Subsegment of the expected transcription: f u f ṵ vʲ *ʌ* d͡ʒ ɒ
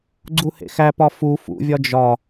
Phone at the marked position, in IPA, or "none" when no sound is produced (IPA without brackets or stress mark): ɒ